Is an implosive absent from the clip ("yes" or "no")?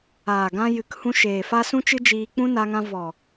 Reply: yes